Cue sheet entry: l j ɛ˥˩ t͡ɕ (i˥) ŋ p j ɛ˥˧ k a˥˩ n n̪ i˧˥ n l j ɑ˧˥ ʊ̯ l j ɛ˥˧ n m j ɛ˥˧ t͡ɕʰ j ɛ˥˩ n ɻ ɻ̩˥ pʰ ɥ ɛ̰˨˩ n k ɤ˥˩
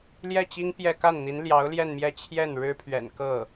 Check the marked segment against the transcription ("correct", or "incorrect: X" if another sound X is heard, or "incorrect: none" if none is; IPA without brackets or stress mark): correct